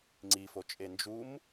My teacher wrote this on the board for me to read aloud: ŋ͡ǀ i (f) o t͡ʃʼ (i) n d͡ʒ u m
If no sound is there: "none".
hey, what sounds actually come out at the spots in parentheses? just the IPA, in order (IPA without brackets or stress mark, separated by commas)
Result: f, e